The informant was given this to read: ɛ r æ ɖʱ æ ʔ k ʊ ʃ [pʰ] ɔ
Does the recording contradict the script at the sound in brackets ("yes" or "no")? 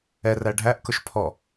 no